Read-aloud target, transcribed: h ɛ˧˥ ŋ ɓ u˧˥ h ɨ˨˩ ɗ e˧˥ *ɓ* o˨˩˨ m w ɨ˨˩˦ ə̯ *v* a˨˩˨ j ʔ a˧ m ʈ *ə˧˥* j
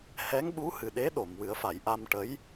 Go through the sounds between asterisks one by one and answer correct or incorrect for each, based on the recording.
incorrect, incorrect, correct

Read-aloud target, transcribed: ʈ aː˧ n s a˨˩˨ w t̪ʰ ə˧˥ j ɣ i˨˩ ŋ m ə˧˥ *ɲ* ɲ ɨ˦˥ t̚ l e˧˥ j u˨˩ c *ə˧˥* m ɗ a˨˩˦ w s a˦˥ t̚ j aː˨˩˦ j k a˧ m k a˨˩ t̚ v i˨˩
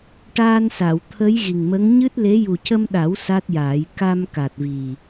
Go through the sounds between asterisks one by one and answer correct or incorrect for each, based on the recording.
incorrect, incorrect

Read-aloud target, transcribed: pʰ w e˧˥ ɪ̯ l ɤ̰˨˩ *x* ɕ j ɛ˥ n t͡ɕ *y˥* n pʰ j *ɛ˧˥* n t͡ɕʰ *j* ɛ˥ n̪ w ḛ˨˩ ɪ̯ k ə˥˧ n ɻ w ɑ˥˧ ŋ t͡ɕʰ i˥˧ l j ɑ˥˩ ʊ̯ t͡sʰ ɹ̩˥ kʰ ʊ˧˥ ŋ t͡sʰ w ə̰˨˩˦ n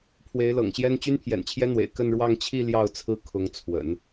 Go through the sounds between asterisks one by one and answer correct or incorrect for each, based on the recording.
incorrect, correct, incorrect, correct

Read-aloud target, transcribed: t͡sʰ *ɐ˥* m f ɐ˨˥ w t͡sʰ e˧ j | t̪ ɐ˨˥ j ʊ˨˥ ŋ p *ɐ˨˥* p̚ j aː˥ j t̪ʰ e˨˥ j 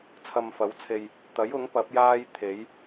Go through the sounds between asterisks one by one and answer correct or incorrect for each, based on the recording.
incorrect, correct

